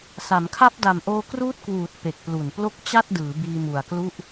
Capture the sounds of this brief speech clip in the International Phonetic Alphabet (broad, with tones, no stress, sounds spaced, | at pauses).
s a˩˦ m kʰ a˦˥ p̚ d a˨˩ m ʔ oː˧ k r uː˦˥ t̚ k w uː˨˩ t̚ p e˨˩ k̚ p l u˨˩ n p l o˥˩ k̚ t͡ɕ a˥˩ t̚ d ɯː˩˦ b iː˧ m u˨˩ a̯ k l u˥˩ ʔ